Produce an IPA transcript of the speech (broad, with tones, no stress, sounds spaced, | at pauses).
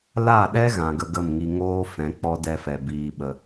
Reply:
l a˦˨ ɗ ɛ˦ ɣ ã˨ ɡ ə˧ ɡ ə˦˨ m ŋ i˧ ŋ oː˦ f ɛ̃˨˦ k͡p ɔ˦ d ɛ˧ f ɛ˨ b iː˧ ɓ ə˧